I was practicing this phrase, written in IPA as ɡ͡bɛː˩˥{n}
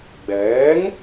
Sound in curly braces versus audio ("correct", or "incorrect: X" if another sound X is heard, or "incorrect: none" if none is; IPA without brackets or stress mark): incorrect: ŋ